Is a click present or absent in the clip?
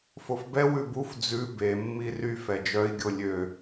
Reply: absent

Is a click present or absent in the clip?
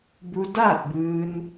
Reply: absent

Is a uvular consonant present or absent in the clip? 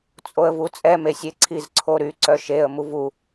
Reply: absent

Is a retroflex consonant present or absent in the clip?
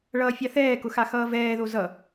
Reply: present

